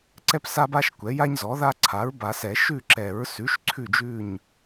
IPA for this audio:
ǀɛ˦psa˦ba˦ʃ kʷɛ˩˥ja˦ɲzɔ˩˥ða˦ ǀʰa˩˥ɹba˨˩˦sɛ˨˩˦ ʃʉ˦˨ǁɛ˨˩˦ɹsʉ˩˥ʃ ǀʰʉ˦˨d͡ʒʉ˦˨ɲ

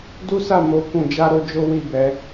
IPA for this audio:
du˦sa˦˨ mo˨˦ kũ˧d͡ʒa˦ɾo˦d͡ʒo˦ wi˦˨bɛ˨˦

